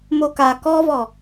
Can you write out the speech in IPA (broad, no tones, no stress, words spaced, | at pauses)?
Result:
moka kɔvɔ